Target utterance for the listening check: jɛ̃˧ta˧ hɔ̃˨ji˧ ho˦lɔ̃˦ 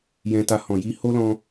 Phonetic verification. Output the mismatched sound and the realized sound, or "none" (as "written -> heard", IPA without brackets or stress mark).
none